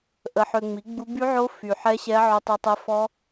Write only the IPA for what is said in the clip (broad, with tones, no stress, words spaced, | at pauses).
ʔə˨ħø˨ŋ͡mi˩˥ɡ͡bu˦˥ by˦˥ʕo˦˥ fy˨ ħɛ˦˥ɕɛ˦˥ ʕo˦˥tˤe˦˥tˤɛ˦˥ fɔ˦˥